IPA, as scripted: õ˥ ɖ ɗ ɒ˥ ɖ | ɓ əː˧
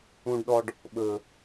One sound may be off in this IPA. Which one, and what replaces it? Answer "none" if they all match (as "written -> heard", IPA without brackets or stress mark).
none